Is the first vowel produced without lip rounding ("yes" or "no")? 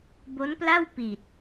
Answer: no